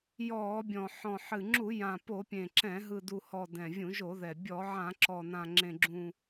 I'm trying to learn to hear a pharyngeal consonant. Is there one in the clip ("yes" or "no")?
yes